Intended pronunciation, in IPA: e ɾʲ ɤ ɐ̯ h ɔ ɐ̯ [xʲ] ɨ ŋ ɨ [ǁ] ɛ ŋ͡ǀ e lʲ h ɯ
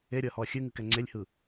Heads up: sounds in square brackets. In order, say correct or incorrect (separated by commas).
correct, incorrect